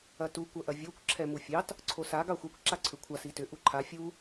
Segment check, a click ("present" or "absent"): present